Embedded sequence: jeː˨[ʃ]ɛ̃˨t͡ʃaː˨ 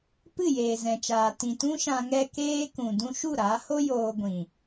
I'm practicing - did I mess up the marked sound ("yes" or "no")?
yes